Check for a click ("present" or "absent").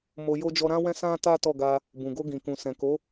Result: absent